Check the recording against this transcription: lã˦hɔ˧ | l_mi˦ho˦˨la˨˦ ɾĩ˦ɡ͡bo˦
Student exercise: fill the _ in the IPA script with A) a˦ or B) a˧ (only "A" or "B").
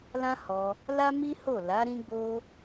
A